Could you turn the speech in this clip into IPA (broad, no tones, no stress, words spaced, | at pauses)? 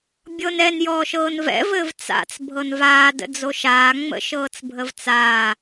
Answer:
bʲɤnɛn jɔːʃɤːnvɛ̰ vɘːvt͡sa̰t͡s bʱɤnvaː də̰d͡zoʃaː ŋ͡mə̰ʃɤːt͡sbʱəvt͡saː